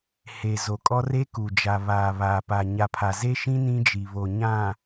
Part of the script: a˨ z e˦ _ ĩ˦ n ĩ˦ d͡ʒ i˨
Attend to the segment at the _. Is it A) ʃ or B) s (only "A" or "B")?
A